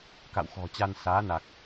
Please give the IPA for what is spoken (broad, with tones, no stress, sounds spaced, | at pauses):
k a̰˧˨ w x ɔ̤˨˩ t͡ɕ a˧ n s aː˨˦ n a˨˩ k̚